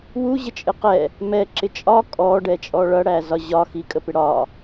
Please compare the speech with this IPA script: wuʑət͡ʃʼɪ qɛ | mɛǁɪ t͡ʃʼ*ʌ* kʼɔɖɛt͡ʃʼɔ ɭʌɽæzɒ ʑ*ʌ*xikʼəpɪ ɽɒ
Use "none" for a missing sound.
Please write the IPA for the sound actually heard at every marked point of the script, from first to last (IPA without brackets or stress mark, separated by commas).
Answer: ɒ, ɒ